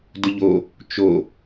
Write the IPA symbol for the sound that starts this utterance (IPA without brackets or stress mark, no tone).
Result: d